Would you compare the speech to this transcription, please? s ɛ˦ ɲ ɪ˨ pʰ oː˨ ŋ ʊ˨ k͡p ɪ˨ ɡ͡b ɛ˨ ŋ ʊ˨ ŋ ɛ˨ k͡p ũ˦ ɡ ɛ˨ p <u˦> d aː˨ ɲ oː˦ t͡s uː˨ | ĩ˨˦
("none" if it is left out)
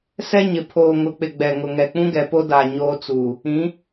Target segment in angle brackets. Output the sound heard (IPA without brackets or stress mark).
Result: o˦